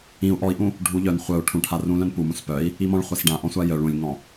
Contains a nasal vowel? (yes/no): yes